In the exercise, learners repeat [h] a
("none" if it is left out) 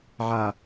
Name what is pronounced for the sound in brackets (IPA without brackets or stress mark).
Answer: ʕ